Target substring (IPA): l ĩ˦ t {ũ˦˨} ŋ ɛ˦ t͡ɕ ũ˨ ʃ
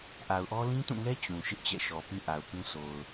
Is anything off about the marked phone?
no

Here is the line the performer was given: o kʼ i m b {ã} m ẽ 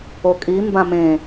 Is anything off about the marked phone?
no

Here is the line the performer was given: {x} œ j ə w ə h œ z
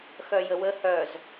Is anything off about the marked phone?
no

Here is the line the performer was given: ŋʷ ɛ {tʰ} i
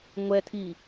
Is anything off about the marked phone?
no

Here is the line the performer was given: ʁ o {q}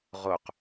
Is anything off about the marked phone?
no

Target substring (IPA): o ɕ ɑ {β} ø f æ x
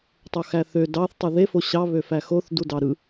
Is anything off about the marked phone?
no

